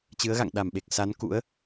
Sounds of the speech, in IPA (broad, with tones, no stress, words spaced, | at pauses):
t͡ɕɨ˨˦ə̯ɣa̰˧˨ŋ ɗa˧˩mɓe˨˩k̚ sa˨˦n kṵ˧˥ə̯